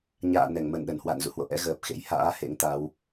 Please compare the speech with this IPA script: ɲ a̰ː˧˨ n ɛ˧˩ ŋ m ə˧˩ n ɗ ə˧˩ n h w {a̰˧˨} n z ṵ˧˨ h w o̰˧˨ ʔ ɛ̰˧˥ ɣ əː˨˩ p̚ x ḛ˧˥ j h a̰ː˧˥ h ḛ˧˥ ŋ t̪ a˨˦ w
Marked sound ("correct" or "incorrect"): correct